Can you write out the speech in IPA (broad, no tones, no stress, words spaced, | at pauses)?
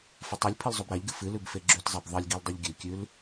fɐtˤʉlʲpʰɨl zˤobɾaʎɡɨ fɨlʉb feɡ͡ǁʉtzˤab ðˤɨlʲɡil dˤɨʎɡʲʉkʲʉl